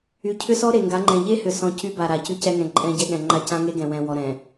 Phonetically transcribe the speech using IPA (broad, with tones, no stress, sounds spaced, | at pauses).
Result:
y˨ cʰ ʏ˦ s ɔ˦ ɾ e˨ ŋ ɡ a˨˦ ŋ͡ǃ ɛ̃˨ ʎ e˦ h ʏ˨ s ɔ̃˨ c y˦ b a˨ ɾ a˨ c y˦ c ɛ˦ ŋ ɛ̃˨ ǃʼ ɛ̃˦ ɟ ɛ˦ ɠ ɛ̃˨ ŋ͡ǃ a˦ c ã˦ ŋ e˦ ɡ ɛ̃˨ w ɛ̃˨ w ɔ˨ ɾ ɛ̃˨